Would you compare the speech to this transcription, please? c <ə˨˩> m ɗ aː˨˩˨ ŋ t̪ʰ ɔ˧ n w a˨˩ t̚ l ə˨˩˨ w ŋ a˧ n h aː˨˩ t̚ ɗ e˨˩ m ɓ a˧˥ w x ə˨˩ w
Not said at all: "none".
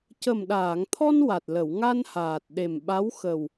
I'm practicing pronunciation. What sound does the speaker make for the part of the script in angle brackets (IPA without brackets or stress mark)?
ə˨˩